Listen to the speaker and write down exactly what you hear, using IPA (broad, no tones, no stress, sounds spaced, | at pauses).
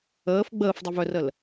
əː f ɡ͡b əː f dˤ ɪ v œ r ə l